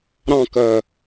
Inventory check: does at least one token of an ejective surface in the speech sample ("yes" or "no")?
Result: no